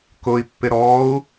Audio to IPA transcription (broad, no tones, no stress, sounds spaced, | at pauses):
k ʊ i̯ pː ɪ ɾ ɔ u̯